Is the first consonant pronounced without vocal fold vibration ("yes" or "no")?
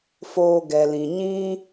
yes